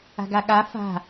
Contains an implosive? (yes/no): yes